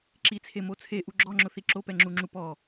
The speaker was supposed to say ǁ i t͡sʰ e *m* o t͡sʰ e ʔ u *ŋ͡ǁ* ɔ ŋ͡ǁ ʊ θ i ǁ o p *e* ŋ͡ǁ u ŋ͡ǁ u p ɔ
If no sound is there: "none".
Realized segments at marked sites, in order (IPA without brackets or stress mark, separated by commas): m, ɡ͡ǁ, ɛ